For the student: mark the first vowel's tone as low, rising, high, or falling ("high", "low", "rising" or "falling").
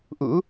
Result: rising